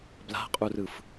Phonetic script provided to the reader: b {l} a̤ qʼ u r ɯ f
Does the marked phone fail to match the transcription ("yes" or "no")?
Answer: no